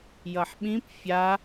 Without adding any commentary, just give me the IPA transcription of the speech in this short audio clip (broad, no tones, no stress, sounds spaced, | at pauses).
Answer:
j ʌ ħ ɓ ĩ p fʲ a